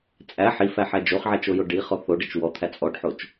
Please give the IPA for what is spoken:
t͡sʼæ ħifæħæ d͡ʒoχʕæt͡ʃojo ɖiχɔ θoɖɘt͡ʃ wɔt̪ʰæ t͡sʼɔɖħot͡ʃ

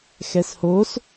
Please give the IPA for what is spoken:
xɛshos

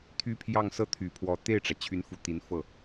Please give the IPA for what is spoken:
t̪ʰy˥pʰjɑ˥˧ŋ sɤ˥˩t̪ʰy˨˩pʰwɔ˧˥ t̪e˥˩ɪ̯ʈ͡ʂä˩ t͡ɕʰy˧˥nfu˨˩ t̪i˧˥nfɤ˥˩

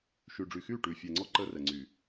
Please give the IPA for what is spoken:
ʃyː˨ɖ͡ʐy˨ xyː˦˨ʈʉː˨fʲɛ˨ŋ͡ǀɔ˦ ǃəː˦rɛ˨ŋ͡ǀyː˨

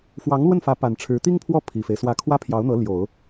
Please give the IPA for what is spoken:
fwɑ˧˥ŋlwə˥˩nfä˧˥ pa˨˩nʈ͡ʂʰɻ̩˧˥ t̪i˥ŋpʰwɔ˥˩ pʰi˨˩fe˦ɪ̯swä˥˩ kʰwä˥pʰjɑ˧˥ʊ̯n̪ɤ˧˥ ljo˨˩˦ʊ̯

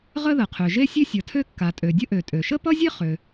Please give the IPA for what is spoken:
ʁə˥ðə˩qʰø˩ ʒe˥sʲø˥sʲʌ˩tʰø˥ kːa˩tʼø˩dʲə˥ʔø˩ tʼø˩ʃə˥pʌ˥zʲe˥ χø˩

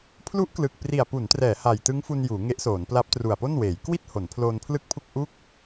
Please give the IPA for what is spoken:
pʰlu˦˥ʔklɯ˨˩k̚ pri˨˩a̯pu˩˦ntrɛː˩˦ ha˨˩jtɯ˦˥ŋfu˧n juː˩˦ŋe˦˥ʔsoː˩˦n pla˦˥p̚tru˨˩a̯po˥˩nweː˩˦j kwi˥˩t̚ ho˩˦npʰloː˧npʰlɯ˥˩k̚pʰu˥˩k̚ ʔu˥˩k̚

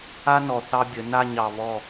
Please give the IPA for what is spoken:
a˦nɔ˨ θɑ˦bʲə˨˦ na˦˨ɲɑ˨βɔ˦˨

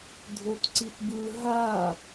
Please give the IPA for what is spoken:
dʱotǀitbɯ ɦa

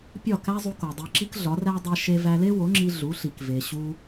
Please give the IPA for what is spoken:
pʲɒ˥˩kæ˥zˤu˧ko˩ dˤe˧ǁi˥kɮɒ˩˥ræ˥ dˤæ˧ʃe˧ væ˧le˥wo˩˥ŋ͡ǁi˧ ɮu˩˥ɬi˩kve˩ɕu˧

